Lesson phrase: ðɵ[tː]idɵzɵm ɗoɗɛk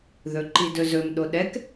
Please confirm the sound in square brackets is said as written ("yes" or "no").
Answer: no